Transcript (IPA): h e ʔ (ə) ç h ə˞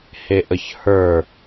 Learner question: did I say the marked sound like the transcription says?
yes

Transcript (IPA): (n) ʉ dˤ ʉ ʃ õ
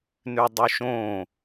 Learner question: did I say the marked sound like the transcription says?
yes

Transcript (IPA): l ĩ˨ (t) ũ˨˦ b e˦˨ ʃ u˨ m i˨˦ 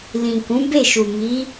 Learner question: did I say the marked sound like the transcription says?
no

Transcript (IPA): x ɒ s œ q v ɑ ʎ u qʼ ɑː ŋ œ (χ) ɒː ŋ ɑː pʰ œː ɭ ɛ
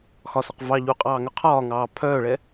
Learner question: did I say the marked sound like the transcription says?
no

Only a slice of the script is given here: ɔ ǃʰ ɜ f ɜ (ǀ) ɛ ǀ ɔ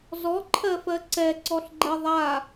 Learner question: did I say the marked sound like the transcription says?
yes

